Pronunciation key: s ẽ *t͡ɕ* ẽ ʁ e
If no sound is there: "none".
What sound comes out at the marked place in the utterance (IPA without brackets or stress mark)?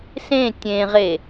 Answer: tʲ